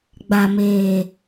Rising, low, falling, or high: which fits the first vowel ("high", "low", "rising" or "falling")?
low